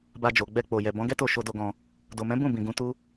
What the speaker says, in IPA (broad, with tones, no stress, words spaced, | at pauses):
ba˧d͡ʒo˨ ɡ͡bɛ˧k͡po˨jɛ˨ bɔ̃˨˦ɡɛ˦to˦˨ʃo˧ do˧ɡɔ̃˧ | do˨mɛ̃˨˦ bũ˦˨ bĩ˨ɡũ˨˦ tu˦